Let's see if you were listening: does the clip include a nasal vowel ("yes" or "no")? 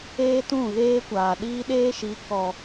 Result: yes